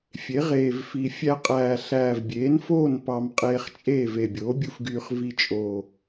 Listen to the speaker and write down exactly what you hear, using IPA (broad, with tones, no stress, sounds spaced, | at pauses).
fʲ e˩˥ ʁ eː˨˩ v f i˨˩ fʲ æ˧ qʼ æː˨˩ ɬ æː˨˩ v bʲ eː˩˥ n f oː˥˨ n p ɑ˧ m qʼ eː˧ χ t͡ʃʼ eː˥˨ v e˨˩ bʲ oː˩˥ bʲ u˧ f ɡ yː˧ χ v i˧ t͡ʃʼ o˨˩